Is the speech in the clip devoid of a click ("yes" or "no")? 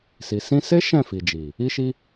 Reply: yes